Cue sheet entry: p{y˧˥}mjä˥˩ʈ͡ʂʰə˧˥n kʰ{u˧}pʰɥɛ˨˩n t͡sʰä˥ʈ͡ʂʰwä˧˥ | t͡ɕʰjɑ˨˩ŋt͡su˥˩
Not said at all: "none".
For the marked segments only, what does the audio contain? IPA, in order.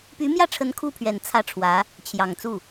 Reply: y˧˥, u˥˩

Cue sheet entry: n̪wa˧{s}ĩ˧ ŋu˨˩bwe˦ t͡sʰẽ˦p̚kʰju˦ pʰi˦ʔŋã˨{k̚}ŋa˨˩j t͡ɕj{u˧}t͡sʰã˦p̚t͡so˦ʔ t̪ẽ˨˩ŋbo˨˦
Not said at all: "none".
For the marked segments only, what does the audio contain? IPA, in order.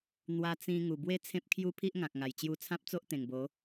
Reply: t͡s, k̚, u˧

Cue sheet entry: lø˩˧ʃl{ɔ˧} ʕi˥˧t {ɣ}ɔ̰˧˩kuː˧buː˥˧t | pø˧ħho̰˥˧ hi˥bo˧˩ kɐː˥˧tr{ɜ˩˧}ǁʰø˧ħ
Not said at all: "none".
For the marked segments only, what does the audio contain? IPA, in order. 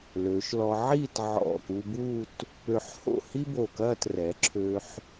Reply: ɔ˧, ʕ, ɛ˩˧

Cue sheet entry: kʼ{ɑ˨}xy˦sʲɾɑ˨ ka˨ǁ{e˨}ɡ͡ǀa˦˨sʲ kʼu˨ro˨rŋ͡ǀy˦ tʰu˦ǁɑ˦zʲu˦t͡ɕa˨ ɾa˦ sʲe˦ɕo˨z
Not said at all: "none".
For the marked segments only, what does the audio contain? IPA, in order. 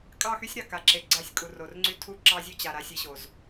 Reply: ɑ˦˨, e˨

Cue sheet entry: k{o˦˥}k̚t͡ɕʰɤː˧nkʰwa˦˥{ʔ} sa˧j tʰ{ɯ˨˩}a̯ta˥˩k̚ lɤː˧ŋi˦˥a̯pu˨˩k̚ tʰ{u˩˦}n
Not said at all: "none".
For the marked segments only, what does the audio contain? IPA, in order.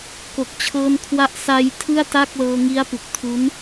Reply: o˨˩, ʔ, ɯ˥˩, u˦˥

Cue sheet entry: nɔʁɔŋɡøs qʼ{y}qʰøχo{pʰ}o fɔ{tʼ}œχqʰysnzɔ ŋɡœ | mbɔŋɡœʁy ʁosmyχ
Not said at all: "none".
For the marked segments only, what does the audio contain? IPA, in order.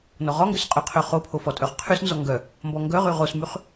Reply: y, pʰ, tʼ

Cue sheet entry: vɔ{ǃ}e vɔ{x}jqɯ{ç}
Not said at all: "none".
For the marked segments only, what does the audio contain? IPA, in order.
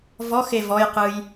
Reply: x, none, j

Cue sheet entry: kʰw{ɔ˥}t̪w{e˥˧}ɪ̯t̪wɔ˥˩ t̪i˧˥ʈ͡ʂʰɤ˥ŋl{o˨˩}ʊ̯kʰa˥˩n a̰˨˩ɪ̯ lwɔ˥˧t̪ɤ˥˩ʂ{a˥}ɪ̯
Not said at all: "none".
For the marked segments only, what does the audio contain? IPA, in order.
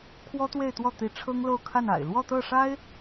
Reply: ɔ˥, e˥˧, o˥˧, a˥

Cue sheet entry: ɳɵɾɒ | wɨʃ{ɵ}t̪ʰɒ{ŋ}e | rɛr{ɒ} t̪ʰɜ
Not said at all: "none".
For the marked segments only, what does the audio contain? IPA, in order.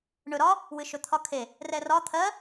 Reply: ɵ, kʰ, ɒ

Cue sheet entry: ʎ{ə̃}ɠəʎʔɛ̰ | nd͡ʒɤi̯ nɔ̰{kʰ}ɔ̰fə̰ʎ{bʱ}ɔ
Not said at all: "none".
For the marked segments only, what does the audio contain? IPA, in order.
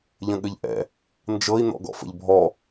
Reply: ə̃, ɡ, bʱ

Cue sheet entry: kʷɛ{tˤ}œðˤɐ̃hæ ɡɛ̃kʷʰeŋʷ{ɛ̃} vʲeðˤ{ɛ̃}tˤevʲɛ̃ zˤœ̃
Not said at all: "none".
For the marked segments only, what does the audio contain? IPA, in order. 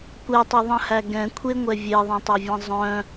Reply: tˤ, ɛ, ɛ̃

